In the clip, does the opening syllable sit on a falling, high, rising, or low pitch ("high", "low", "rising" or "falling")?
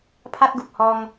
high